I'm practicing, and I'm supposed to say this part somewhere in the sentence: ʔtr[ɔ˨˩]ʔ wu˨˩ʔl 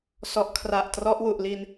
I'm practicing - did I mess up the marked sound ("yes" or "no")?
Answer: yes